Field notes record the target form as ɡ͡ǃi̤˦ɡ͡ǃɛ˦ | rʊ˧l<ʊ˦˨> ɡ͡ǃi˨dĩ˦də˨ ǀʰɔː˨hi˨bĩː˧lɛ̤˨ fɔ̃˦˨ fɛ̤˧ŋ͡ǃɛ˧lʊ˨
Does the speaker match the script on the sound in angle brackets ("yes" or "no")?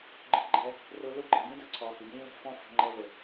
no